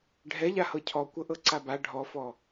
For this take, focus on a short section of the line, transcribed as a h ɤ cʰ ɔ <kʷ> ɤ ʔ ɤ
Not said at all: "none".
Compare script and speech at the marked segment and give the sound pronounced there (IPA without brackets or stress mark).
kʷ